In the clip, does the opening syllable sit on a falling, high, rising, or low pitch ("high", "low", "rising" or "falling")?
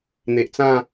low